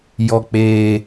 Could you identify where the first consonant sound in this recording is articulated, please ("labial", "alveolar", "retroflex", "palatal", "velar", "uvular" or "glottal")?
palatal